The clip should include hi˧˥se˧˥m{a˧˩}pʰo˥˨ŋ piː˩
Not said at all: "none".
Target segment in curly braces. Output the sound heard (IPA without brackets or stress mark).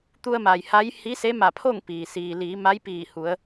a˧˩